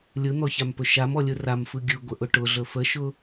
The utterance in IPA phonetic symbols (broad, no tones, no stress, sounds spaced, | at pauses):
lʲ ɯ n̪ ɔ ç a m p ɵ ʃ a m ɔ lʲ ɯ r a m f ɯ ɡʲ ɯ ɡʷ ə ʔ ʊ ʈ ʊ ɮ ɵ f ə ʃ ʊ